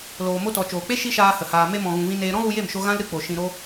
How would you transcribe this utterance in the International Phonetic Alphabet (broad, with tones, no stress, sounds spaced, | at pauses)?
l oː˨ m o˧ t ɔ˨ t͡ʃ oː˨ k͡p e˦ ʃ i˦ ʃ aː˧ h ə˨ h aː˨ m e˧ m ɔ̃˨ ɣ ũ˧ v ĩ˦ n eː˦ ɾ ɔ̃˦ ɣ u˧ j e˦˨ m ʃ o˧ ɣ ã˦ l ɾ ɨ˧ k͡p o˨ ʃ ĩ˧ ɾ o˦